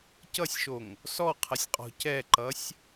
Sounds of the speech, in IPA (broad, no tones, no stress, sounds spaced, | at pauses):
c ʌ sʲ ʃ o ŋ | s ɔ qʰ ʌ sʲ qʼ ɔ̤ c ɛ ǃ ʌ sʲ